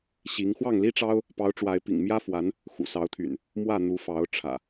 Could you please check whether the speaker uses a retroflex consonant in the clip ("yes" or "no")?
yes